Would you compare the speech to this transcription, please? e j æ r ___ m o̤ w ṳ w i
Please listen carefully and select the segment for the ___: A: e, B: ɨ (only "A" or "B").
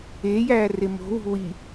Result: A